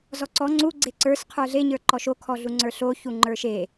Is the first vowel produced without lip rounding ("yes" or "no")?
no